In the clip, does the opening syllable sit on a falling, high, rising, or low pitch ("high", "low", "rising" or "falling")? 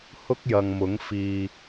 high